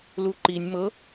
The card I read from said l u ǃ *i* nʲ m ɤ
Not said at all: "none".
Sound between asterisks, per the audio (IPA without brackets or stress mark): i